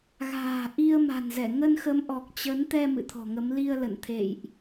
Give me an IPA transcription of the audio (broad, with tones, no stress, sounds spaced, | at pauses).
ɣ a̤ː˨˩ ʔ i˧ ə̯ m a̤˨˩ n z ɛ˧˩ ŋ ə˧ n x ə˨˦ m ʔ ɔ˨˩ k̚ t͡ɕ ə˨˦ n t̪ ɛ˧ m ɨ̰˧˨ t̪ʰ ɔ̤˨˩ ŋ ə˨˦ m l i˧ ə̯ l ə̰˧˨ n t̪ʰ ḛ˧˨ j ʔ